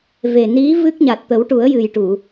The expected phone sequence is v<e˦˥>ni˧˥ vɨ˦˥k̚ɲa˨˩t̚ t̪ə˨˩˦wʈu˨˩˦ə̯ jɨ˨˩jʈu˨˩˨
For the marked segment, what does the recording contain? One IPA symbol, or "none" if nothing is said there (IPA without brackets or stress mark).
e˨˩